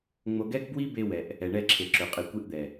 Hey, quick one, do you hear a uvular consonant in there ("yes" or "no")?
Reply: yes